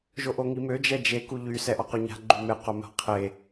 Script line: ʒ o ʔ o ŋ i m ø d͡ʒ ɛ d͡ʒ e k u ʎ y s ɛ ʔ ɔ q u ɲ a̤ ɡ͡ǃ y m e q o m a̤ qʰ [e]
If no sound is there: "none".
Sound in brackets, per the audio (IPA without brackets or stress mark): e